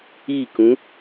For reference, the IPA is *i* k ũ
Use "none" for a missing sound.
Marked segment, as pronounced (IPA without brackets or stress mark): i